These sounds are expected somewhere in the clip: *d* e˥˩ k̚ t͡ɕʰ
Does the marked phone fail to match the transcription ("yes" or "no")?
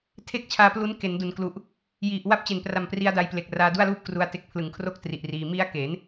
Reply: yes